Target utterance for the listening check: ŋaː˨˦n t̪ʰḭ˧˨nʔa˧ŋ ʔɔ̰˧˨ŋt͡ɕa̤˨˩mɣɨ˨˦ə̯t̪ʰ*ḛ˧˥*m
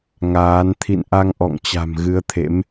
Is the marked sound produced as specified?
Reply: yes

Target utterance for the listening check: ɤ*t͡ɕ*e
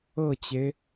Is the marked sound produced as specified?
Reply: yes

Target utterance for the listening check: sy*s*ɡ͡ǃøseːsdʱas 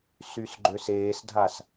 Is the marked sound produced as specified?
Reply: yes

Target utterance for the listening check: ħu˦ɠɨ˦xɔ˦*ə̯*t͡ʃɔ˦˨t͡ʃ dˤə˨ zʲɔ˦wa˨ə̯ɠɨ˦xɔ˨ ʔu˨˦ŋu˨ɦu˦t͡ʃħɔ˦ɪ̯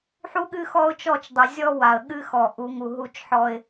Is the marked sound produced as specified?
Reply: no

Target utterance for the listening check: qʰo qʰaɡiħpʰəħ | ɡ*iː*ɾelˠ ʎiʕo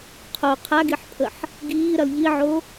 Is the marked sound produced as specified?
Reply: yes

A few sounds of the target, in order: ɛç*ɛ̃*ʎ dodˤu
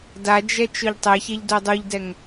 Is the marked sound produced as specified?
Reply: no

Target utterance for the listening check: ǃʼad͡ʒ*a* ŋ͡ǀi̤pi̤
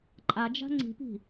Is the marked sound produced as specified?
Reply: no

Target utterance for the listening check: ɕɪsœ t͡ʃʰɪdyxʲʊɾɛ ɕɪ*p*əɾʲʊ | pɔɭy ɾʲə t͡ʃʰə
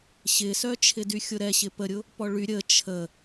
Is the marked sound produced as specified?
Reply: yes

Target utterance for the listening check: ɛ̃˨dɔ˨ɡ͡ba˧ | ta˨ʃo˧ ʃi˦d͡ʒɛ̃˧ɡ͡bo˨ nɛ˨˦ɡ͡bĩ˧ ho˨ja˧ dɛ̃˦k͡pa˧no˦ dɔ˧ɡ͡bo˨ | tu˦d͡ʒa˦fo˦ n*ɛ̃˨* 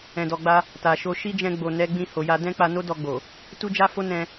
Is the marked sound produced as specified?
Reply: no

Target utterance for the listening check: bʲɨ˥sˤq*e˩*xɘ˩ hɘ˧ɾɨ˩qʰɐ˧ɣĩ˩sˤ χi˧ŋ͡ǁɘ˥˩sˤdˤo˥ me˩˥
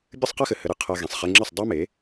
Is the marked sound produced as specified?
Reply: no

